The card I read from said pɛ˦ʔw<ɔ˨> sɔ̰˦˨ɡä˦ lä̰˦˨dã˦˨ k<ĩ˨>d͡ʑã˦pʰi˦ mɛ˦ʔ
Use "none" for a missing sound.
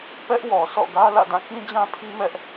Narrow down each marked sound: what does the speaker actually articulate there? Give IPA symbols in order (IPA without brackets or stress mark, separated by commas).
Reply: ɔ˨, ĩ˦